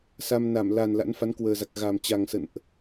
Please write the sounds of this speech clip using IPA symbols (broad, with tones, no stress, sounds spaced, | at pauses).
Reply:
s a˧ m n a˧˩ m l a˨˩ n l a̰˧˥ n f a˨˦ n k w əː˨˩ z a˨˩ k̚ ɣ a˨˩ m t͡ɕ a˨˩ ŋ s ə̰˧˨ n ʔ